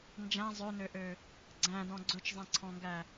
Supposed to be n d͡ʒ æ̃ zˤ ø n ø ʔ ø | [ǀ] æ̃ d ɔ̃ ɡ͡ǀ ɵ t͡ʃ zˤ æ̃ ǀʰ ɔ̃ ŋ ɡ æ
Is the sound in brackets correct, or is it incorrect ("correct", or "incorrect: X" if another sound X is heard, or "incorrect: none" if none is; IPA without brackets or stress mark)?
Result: incorrect: ɡ͡ǀ